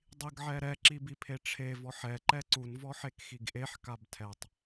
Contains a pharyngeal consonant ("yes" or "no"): yes